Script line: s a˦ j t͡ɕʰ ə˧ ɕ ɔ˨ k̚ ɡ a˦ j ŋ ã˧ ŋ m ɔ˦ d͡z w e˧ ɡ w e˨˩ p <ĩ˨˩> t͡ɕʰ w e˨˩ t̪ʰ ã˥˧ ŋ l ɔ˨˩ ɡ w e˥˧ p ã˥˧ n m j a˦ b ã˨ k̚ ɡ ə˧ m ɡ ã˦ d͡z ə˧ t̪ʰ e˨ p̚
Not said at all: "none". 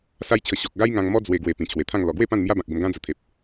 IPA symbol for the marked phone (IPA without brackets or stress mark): ĩ˨˩